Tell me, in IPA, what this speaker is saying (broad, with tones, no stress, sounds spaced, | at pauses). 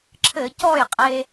ǁʰ ɘ˧˩˧ c ɔ˥˩ j qʼ e˧